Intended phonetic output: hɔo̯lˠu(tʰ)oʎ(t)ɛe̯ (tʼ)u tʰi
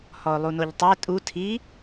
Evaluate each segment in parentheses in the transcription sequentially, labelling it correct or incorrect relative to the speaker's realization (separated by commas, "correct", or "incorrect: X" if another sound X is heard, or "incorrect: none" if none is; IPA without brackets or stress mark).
incorrect: n, incorrect: tˤ, correct